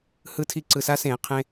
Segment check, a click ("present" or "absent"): present